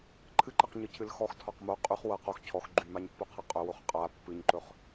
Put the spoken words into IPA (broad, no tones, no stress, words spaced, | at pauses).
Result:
ǃʰɨǃɨqɲɨcʰɨl xɔxtʰɔq mo qʼyχ wɤ qox cʰɔx ɡ͡ǃymaɲpːoqʰɤ qʼɵwoχ qʼa pːɨɲǃɵχ